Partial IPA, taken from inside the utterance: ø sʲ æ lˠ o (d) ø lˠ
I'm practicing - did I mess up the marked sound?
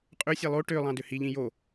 yes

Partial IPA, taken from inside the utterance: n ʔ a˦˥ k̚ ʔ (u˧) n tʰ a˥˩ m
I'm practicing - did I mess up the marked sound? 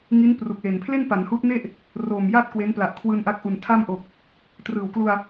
yes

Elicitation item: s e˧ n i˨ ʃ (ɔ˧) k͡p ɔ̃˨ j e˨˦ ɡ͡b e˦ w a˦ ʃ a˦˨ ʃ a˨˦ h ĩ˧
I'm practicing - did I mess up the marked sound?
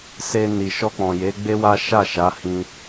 no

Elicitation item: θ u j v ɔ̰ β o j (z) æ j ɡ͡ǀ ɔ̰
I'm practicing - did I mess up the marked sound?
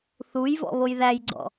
yes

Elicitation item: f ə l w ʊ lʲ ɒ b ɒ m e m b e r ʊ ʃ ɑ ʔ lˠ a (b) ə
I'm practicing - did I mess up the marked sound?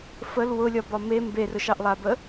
no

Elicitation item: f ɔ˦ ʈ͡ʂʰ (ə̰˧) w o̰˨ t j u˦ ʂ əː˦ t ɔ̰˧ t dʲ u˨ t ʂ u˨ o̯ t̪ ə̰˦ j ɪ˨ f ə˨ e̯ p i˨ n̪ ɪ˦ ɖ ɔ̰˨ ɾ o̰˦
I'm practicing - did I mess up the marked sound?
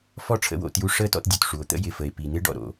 yes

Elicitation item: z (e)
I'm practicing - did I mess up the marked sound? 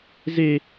no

